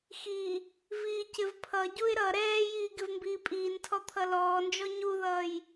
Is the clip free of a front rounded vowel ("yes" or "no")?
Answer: yes